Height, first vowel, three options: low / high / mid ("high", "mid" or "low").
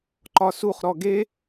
low